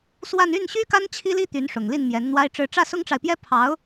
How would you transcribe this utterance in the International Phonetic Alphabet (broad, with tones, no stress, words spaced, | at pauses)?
swa˥˧n y˥˩nɕy˥ka˥n t͡ɕʰi˥li˥ t̪y˧˥nʂʊ˨˩ŋli˥˩n mjɛ˧˥nn̪wa˥ɪ̯ʈ͡ʂɻ̩˥˧ ʈ͡ʂä˥˩sʊ˥ŋʈ͡ʂa˨ɪ̯pjɛ˥ pʰɑ˧˥ʊ̯